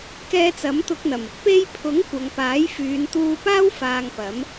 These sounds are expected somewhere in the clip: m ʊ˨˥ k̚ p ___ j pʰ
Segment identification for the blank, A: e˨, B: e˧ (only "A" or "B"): B